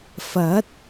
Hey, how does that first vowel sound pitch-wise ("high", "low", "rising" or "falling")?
rising